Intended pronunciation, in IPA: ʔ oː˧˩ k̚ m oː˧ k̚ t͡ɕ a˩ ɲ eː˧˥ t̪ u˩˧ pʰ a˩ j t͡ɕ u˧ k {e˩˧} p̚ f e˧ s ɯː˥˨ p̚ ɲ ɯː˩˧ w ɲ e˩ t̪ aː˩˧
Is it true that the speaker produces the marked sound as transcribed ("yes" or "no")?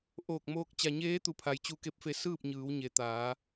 no